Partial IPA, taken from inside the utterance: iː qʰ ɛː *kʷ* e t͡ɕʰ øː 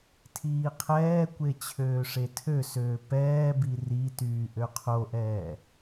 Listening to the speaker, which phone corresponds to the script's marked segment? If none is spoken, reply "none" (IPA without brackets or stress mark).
kʷ